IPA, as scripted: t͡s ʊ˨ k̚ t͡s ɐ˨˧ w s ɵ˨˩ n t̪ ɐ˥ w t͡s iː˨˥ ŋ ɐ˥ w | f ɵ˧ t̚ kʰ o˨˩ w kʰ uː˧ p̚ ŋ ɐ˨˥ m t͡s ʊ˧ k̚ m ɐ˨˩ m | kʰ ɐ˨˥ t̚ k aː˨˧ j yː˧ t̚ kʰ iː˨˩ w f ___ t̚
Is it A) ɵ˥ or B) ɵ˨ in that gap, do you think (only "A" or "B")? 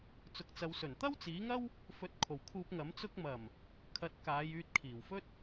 A